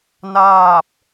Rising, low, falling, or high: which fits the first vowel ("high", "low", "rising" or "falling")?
falling